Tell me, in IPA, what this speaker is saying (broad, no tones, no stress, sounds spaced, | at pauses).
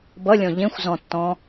b ʌ lʲ ɔ̃ ʎ ẽ xʷ z ɔ̃ tː ɔ̃